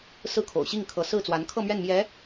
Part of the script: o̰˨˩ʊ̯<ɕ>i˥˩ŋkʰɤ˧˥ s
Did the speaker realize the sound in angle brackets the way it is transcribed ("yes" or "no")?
yes